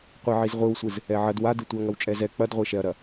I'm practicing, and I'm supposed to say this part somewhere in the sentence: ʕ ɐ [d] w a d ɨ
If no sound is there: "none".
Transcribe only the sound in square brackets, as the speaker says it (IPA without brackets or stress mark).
d